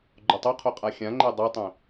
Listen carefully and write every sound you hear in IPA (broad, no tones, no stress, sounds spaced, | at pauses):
ɡ͡ǃ o tˤ o qʰ o qʼ a xʲ ã ŋ͡ǃ e dˤ u tˤ ẽ